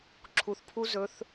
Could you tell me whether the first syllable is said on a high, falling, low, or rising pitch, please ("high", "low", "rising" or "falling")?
low